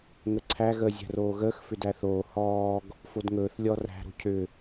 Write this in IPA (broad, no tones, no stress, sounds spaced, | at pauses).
ŋ ə ǀʰ æ ɣ əː zʲ æ̤ r oː ɣ əː x f ʏ d æ θ oː h ɔː ɡ | f o d ŋ ɵː θ lʲ ɔ r æ̤ ɾ o̤ cʰ ʏ